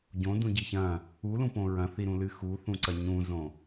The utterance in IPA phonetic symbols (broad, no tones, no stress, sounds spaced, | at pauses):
ɟ õ d ũ ɟ i ç ɐ̃ | u l ũ p õ ɹ ɐ̃ θ i ɾ ũ l ɨ x u θ ũ ǀ ɐ ɲ ũ z õ